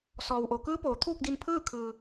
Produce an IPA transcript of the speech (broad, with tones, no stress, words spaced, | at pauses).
sɔː˩wʔo˩kɯː˧˥poː˩ t̪ʰuː˥˨k̚di˧npʰɯː˥˨ kʰɯː˩